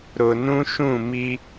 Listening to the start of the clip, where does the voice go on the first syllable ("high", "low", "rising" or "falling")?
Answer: low